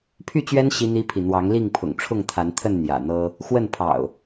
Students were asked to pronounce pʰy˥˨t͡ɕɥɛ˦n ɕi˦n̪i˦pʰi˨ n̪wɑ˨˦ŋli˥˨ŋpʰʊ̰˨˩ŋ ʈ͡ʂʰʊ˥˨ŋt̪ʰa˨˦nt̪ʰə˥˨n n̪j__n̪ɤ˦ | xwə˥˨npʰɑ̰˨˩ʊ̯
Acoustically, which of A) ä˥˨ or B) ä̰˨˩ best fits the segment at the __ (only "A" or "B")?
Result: B